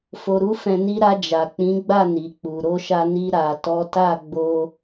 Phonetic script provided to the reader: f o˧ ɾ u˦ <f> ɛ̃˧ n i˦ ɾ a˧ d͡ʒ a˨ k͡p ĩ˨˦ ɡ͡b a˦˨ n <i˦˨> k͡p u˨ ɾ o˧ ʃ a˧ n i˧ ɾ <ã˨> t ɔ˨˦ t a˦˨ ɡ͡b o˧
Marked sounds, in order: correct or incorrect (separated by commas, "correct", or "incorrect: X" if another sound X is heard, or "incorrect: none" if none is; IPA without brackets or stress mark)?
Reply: correct, incorrect: i˨, incorrect: a˨